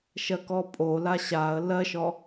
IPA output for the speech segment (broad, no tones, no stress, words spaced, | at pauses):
ʃɜkɔpʼo laɕaə̯ lɜʃɔ